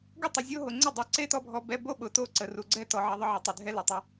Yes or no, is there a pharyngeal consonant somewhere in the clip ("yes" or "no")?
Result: yes